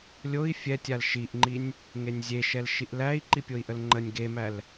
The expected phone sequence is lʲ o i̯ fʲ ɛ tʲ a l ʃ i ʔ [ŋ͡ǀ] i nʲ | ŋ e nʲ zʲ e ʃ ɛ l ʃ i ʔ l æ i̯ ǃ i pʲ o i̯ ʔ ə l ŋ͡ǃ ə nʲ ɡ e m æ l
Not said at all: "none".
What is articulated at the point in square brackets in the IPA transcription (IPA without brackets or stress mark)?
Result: ŋ͡ǃ